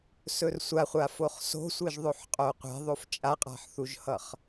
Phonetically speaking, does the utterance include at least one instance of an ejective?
yes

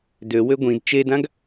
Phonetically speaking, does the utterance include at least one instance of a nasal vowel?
yes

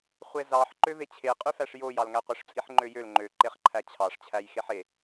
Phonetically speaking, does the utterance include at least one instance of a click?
yes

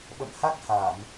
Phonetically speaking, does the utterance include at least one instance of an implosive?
yes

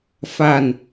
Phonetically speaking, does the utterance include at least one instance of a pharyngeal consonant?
no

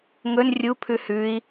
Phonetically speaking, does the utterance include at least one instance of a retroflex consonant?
no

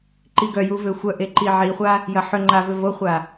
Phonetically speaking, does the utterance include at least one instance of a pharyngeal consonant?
yes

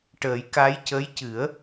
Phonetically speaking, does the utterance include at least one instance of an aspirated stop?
no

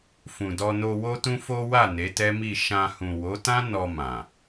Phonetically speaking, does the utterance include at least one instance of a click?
no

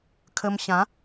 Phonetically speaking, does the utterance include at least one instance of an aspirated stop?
yes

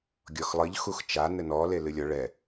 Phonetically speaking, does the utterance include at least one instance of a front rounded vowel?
no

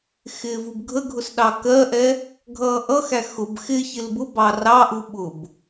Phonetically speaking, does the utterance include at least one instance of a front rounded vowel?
no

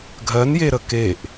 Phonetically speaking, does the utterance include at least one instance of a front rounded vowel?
no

